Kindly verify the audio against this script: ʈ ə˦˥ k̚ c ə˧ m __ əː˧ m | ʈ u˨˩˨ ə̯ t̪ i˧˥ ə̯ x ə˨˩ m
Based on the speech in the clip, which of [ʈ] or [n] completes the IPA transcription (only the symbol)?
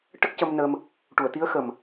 n